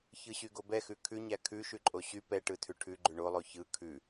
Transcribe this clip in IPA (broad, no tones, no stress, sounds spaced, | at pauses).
ç ɯ ɕ y ɡ o b ɛ x ʉ kʰ ʉ ɲ æ kʰ ʉ ʃ ʉ ǃʼ o ɕ y p ɛ ʈ ɯ tʰ ʉ ʈʰ ʉ ɡ͡ǃ ʉ ɳ o lˠ o ç ɯ kʰ ʉ